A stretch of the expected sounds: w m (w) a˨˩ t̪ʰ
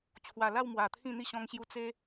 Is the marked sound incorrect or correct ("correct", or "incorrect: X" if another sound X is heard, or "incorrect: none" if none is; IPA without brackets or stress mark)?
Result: correct